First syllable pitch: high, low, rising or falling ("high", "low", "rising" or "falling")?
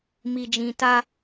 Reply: low